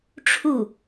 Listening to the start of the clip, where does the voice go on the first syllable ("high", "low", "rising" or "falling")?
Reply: falling